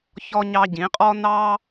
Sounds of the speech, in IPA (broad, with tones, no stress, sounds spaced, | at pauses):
ç ɔ˧ ɲ ɑ˧ ɟ ĩ˨˦ qʼ ɔ˦ n ɑ˦